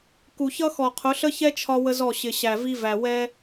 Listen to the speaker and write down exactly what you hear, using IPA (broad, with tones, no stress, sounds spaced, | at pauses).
k u˨ ç ʌ˦ x ɔ˨ qʰ ʊ˨˦ ɬ ə˦ ç ɛ˦ t͡ʃʰ ɒ˦ w ə˦ z ɔ˦˨ ɕ ɪ˨ ɕ æ˨ v i˦ v æ˨ w ɛ˦